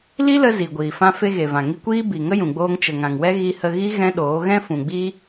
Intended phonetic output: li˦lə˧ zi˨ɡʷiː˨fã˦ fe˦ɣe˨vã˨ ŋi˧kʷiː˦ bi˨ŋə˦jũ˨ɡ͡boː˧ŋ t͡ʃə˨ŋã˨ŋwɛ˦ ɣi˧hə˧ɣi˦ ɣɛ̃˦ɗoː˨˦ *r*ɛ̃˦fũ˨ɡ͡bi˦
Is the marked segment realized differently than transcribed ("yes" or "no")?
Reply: yes